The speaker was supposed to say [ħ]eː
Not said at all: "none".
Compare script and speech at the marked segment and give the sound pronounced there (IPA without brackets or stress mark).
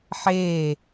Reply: ħ